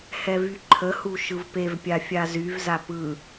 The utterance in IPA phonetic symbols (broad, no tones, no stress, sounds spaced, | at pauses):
h ɛ v y ǃʰ ə h u ʃ ɯ v p e v pʲ a fʲ a z y v z a p ɯ